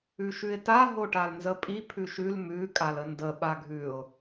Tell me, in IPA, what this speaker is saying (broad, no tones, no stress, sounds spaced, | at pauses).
ʉ ʃ ʉ ɪ̯ t a ɦ o ʈ a l n z ə pʼ i pʰ ʉ ʃ ʉ l m ʉ kʼ a l ə n d ə ɓ a ɡʱ ʉ ʊ̯